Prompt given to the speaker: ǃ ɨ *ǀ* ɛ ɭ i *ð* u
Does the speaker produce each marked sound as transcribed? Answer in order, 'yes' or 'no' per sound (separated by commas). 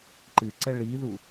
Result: yes, yes